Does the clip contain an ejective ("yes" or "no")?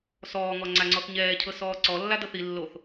no